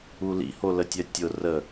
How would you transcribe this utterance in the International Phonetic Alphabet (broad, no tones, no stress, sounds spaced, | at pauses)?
u l ḭ h o l ə tʲ œ tʲ ʊ r ə